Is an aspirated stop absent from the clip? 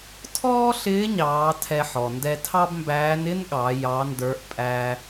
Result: no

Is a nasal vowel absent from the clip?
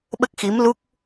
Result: yes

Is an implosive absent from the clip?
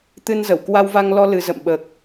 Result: no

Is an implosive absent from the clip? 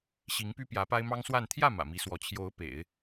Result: yes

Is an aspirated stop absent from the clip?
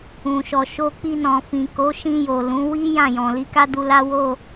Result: yes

